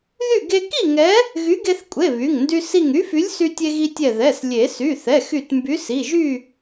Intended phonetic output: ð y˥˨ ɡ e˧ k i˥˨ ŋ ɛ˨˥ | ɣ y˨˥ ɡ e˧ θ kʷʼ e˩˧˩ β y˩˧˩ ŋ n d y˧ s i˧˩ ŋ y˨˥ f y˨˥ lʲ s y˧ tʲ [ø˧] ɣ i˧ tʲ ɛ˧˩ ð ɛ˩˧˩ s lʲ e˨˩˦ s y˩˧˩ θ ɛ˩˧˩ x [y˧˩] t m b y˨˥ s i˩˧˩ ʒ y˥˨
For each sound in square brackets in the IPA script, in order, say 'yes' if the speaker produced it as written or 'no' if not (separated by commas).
no, yes